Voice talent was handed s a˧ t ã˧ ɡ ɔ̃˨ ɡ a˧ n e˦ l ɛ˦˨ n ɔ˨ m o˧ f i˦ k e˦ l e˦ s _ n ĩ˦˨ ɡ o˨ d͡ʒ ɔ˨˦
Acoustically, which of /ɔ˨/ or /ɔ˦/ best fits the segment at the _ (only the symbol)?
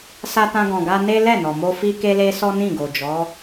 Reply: ɔ˦